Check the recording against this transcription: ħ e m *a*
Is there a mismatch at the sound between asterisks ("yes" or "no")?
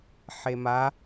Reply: no